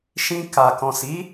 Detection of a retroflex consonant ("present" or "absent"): absent